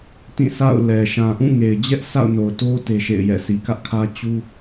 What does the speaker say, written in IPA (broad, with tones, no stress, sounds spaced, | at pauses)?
t ĩ˦˨ sʰ a̰˦˨ ʊ̯ l ɛ˨ ʃ ã˨ ʔ ũ˦˨ ŋ e˨ ɪ̯ d͡ʑ ɛ˦ ʔ sʰ a̰˦˨ ʊ̯ n o˨ ʊ̯ t o˦ t e˦ ʃ ḛ˦˨ ɪ̯ j ɛ̰˦˨ s i˨ k ä˦ ʔ kʰ ä˦ t͡ɕ u˦